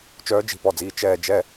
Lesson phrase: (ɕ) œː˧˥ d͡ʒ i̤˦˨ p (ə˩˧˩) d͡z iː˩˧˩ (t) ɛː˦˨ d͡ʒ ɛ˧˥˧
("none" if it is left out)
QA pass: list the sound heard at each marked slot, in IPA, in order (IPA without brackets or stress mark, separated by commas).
t͡ʃ, ɔ˩˧˩, t͡ʃ